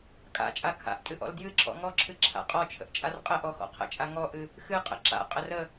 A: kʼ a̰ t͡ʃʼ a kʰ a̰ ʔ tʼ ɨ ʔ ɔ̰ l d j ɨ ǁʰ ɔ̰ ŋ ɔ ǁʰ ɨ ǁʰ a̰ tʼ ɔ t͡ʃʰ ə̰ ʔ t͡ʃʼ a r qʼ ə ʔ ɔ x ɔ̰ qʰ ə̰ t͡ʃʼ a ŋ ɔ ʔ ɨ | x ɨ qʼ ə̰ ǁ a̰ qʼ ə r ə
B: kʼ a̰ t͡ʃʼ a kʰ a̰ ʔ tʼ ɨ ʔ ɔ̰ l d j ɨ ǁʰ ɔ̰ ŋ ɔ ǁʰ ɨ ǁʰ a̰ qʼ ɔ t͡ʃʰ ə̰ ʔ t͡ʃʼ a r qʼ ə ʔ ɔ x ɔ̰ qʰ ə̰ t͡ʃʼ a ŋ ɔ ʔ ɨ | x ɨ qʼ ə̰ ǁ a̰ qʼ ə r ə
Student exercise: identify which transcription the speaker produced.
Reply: B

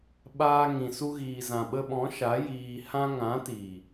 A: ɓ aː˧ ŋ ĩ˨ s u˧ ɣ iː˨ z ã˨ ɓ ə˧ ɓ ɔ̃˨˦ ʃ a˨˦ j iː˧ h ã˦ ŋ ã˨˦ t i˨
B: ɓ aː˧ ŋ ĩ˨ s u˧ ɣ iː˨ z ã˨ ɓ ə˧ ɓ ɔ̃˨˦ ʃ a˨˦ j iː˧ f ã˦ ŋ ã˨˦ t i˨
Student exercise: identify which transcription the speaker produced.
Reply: A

